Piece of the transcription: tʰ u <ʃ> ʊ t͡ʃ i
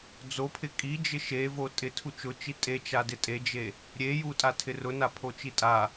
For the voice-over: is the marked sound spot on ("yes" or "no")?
no